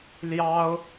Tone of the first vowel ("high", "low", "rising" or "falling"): high